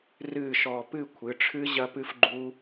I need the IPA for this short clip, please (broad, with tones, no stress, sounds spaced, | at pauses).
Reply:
r ɨː˥˨ ʃ ɔː˧ p ɨ˥˨ kʷʰ ɨ˩˧ ʈ͡ʂʰ ɨ˦˥ ʑ ɐ˦˥ p ɨ˦˥ f ɡ͡ǃ u˦˥